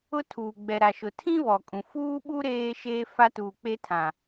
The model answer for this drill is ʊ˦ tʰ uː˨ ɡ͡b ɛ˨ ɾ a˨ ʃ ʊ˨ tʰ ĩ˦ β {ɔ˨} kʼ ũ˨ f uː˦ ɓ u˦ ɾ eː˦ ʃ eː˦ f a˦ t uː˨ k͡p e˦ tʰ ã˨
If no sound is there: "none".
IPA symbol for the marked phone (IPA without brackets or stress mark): ɔ˨